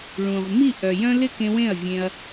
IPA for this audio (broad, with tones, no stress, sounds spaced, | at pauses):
ɭ ũ˨ ʁ m i˦˨ ʔ œ˨ j œ̃˦ l ɪ˦ k ẽ˧ w ẽ˦˨ ɐ̯ vʲ ẽ˧ ɐ̯